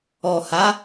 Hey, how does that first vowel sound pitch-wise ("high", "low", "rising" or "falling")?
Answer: low